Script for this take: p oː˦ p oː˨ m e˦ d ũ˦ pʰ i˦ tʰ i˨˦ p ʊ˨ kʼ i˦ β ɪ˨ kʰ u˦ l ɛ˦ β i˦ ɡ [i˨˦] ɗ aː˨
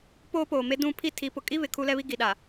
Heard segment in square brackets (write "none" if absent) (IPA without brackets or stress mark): i˨